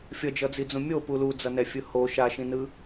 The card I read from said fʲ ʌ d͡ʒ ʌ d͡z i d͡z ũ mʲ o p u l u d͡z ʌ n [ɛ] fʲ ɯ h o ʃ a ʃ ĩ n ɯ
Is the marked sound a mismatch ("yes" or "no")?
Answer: no